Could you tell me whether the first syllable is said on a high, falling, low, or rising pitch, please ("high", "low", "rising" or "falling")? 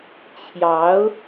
rising